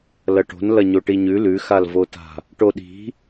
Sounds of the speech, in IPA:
l ɐ ʈ o̤ n l ɐ ɲ o ʈ i ɲ ʉ l ʉ x a l v o t a̤ | ʈ o ɗ i̤

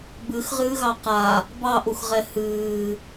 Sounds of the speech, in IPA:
b ɨ x ʁ ɨː ɣ ɑ q a | b ɑ ʔ u x ʁ ɛ h ɨː

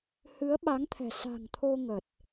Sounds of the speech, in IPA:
h ɨ˨˦ ə̯ ɓ a˨˦ ŋ t̪ʰ ɛ̤˨˩ s a̤˨˩ ŋ t̪ʰ o˧ ŋ ə˨˩ t̚

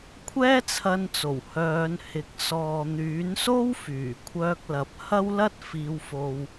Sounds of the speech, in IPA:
kʷʰ ɛː˥ t͡sʰ ɐ˧ n t͡s o˨˩ w h œː˨˧ n h ɪ˨˥ k̚ s ɔː˨ n̪ yː˨˥ n s o˥ w f yː˨˩ kʷʰ œː˧ k̚ l ɐ˨˥ p̚ h ɐ˥ w l ɐ˥ t̚ f iː˧ w f o˧ w

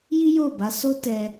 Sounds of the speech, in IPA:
j i˦ j o˦˨ b a˧ s o˦ t ɛ˦

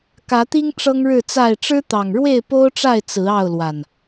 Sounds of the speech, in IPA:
k ä˨˦ t̪ i˦ ŋ ʈ͡ʂ ɤ˦ ŋ ɻ ɻ̩˥˨ t͡s a˥˨ ɪ̯ ʈ͡ʂ ɻ̩˦ t̪ ɑ˨˩ ŋ ɻ w e˥˨ ɪ̯ p o˦ ʊ̯ ʈ͡ʂ a˥˨ ɪ̯ t͡s ɹ̩˨˦ ɑ˥˨ ʊ̯ l w a˨˩ n

